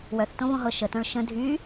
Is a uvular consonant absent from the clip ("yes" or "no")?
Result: yes